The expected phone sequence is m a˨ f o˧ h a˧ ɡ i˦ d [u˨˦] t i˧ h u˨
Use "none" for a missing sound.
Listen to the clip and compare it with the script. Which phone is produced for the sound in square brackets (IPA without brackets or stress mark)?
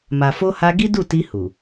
u˦˨